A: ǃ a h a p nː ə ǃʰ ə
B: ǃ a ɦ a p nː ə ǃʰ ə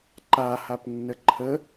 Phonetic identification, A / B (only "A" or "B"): A